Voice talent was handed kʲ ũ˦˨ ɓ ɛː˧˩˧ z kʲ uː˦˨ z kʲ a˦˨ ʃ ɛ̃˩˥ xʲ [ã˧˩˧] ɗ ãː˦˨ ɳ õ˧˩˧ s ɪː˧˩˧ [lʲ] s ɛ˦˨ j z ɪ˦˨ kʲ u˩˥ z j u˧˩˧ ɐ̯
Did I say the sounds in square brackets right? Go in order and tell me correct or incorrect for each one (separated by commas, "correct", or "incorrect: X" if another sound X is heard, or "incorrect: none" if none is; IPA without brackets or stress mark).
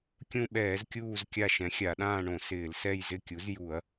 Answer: incorrect: a˧˩˧, incorrect: l